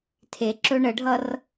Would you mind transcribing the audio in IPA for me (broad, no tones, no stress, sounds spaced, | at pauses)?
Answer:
tʰ e ǁ ɵ ɳ ə ɖʱ ʌ r